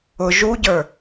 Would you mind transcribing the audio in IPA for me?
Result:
ʊ ʒuɟə˞

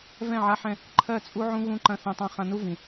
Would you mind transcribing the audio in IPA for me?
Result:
vɛ̃˦˨ʕa˧ħɛ̃˧ | ǃʰɜ˦˨t͡sʼu˦ʕũ˦ ɣũ˧ǃɐ̃˧ θɛ̃˧tˤã˦ χã˧nu˦vĩ˨

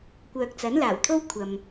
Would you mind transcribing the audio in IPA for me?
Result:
kʷœː˨k̚t͡sɐ˨˥nlaː˨˩wt̪ʰo˥w kʷʰɐ˨m

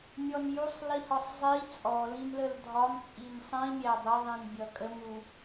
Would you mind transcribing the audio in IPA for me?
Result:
mʲɔnjusˤ lihɒsˤzˤi t͡sʼɔ lĩmləldʱɒm t͡sʼimsˤĩ mʲædˤə ðˤĩnbʲʌkʼə mu

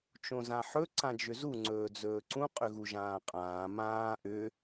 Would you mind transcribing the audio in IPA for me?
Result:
t͡ʃõzãħɵ ǀãd͡ʒʏzu ŋ͡ǀɵːd͡zɵːǀũ qʼʏɣuʒãːqʼãː mãː ʔʏ

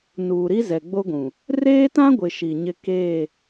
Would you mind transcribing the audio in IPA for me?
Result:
nuː˨ɾi˦ zɛ˨ɡ͡bo˦ɡʷũ˨ | reː˦tã˦ɡʷɪ˨ ʃi˨ɲɪ˦ keː˦˨

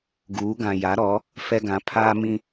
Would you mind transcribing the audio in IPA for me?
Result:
ɡuː˨˦ɡã˨ ja˨˦ɾɔ˨˦ | fɛ˦ɡã˨˦ pʰaː˦mĩ˦

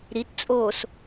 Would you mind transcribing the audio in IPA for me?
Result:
ɾitt͡sʼoːs

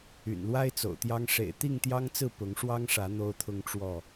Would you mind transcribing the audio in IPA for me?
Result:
y̰˨˩nlwa˦ɪ̯ t͡so̰˨˩ʊ̯t̪jɑ˦ŋ ʂḛ˨˩ɪ̯t̪i˥˨ŋ t̪jɑ˦ŋt͡sɹ̩˥˨ pʊ˨˦ŋʂwɑ˦ŋʂä˨˦ n̪o˦ʊ̯t̪ʰʊ˦ŋʈ͡ʂwɔ˥˨

